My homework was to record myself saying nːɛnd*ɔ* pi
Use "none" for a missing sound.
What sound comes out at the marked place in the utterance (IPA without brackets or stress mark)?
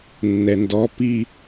ɔ